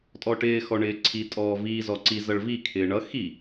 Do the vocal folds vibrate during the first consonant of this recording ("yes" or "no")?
no